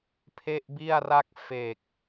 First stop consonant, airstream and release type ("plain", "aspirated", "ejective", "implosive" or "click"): aspirated